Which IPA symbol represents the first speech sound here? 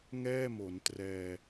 ŋ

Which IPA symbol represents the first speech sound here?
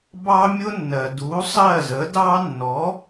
b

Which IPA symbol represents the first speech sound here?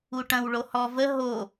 u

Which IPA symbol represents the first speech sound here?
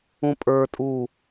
ũ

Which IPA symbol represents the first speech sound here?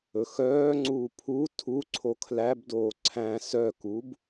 ɵ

